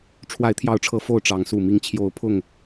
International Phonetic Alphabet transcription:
ʈ͡ʂʰ w a˨˦ ɪ̯ t̪ʰ j ɑ˨˦ ʊ̯ ʈ͡ʂʰ ɤ˨˦ f o˥˨ ʊ̯ ʈ͡ʂ ɑ˨˦ ŋ s u˨˩ m i˨˦ ŋ t͡ɕʰ j o˨˦ ʊ̯ pʰ ʊ˥˨ ŋ

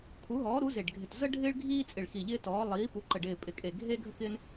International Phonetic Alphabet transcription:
kʰ u˨˥ ɦ ɔː˨˥ ɾ u˨˥ z e˧˩ ɖ ɡʱ ɪ˧˩ t z ə˥ ɖʱ ɪː˥ ɭ ɡʱ iː˥ t͡sʼ ɪ˧˩ ɭ x i˧˩ ʎ ɪː˥ t ɔː˨˥ lˠ iː˨˥ p u˨˥ ǃ ə˧˩ ɖ ɪː˧˩ pʼ ɪ˧˩ kʼ e˧˩ ɡʱ e˥ ɡʱ ə˥ k ɪː˥ n

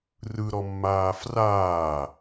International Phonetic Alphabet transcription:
r ɯ ɾ ɔ mː aː f r aː

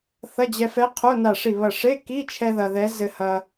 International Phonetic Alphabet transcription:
θ ɐ˧˥˧ d͡ʑ ɛ˧ f ɛ˧˥ qʰ o˧˥˧ n a˧˩ ʂ i˧˩ β ɐ˧˩ ʂ e˧˥˧ k i˧˥˧ t͡ʃʰ ɛ˧ ð ɐ˧ ð ɛ˧˥ z ɘ˧ h ɐ˧

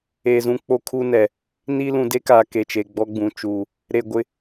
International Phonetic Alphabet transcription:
e˨ z ũ˨ k͡p o˦ kʰ uː˦ n ɛ˨ | n i˦ l ũ˨ d e˦ k aː˨ k e˨ t͡ʃ e˨ ɡ͡b ɔ˦ ɡ͡b ũ˨ t͡ʃ uː˨ | ɾ e˨ ɡʷ ɪ˨

